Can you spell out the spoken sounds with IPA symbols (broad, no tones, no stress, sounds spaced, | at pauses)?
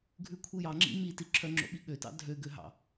ɡʱ ʉ kʷʰ i j ɑ ŋ͡ǁ ḭ m i t i ǁʰ œ ŋ͡ǁ o̰ ɓ i ɠ ø t ɑ̰ dʱ ø ɡ ø ɦ ɑ̰